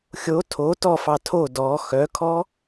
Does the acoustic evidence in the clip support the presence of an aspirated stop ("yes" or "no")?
yes